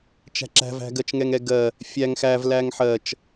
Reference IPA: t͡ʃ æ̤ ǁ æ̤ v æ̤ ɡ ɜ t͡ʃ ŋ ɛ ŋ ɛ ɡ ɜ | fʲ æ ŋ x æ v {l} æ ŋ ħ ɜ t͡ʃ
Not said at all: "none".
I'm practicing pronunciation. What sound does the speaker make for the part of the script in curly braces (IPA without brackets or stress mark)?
l